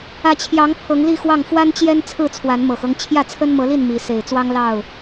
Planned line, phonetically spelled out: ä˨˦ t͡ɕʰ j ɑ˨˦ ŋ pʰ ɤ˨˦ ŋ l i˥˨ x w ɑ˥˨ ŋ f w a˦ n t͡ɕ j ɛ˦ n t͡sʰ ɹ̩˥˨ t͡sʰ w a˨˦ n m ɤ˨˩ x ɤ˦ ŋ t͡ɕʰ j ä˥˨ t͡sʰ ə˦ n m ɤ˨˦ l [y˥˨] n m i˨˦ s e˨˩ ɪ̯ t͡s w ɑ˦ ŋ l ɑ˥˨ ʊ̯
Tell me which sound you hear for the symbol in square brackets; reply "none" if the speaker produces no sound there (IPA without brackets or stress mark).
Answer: i˥˨